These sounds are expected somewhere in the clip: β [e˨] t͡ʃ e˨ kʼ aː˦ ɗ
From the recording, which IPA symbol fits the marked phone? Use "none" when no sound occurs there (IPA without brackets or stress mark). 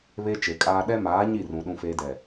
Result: e˦